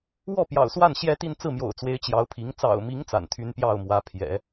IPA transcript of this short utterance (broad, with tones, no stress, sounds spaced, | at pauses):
w ɔ˥˩ p j ɑ̰˨˩ ʊ̯ s w a˥˩ n ɕ j ɛ˥ t̪ i˥˧ n t͡s ɹ̩˥˩ m j o̰˨˩ ʊ̯ t͡s w e˧˥ ɪ̯ t͡ɕ j ɑ˧˥ ʊ̯ pʰ i˧˥ ŋ t͡s ɑ̰˨˩ ʊ̯ m i˧˥ ŋ t͡s a̰˨˩ n t̪ʰ y˥ n p j ɑ˥˩ ʊ̯ m w ä˧˥ pʰ j ɛ̰˨˩˦